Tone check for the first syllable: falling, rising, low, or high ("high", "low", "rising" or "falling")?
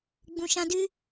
low